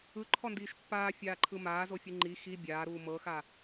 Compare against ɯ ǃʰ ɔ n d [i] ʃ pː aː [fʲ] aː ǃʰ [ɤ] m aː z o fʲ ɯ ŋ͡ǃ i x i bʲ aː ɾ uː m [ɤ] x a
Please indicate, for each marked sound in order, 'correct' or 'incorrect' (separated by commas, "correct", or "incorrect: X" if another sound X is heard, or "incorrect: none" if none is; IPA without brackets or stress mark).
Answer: incorrect: iː, correct, incorrect: ɯ, correct